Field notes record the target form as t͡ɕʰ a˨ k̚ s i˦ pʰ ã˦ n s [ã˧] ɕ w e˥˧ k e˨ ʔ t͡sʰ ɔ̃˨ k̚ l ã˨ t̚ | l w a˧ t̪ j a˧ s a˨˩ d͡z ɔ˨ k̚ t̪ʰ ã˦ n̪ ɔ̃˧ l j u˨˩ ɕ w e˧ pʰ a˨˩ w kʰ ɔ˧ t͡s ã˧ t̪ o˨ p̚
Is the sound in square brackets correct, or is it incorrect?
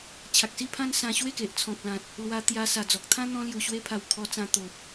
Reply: correct